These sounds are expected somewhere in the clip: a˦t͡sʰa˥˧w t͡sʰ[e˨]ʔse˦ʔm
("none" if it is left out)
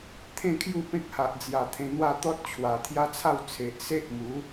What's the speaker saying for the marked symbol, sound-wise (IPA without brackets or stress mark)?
e˨